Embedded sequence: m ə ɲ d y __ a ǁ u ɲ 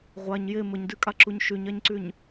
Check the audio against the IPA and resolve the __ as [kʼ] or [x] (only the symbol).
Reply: kʼ